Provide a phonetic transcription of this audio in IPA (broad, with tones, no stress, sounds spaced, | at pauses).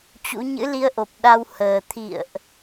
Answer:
t͡ɕ ṵ˧˥ ɲ ɨ̰˧˥ l i˧ ə̯ ʔ o˨˩ p̚ ɗ a˧ w h əː˨˩ t̪ʰ ḭ˧˨ ə̯ ʔ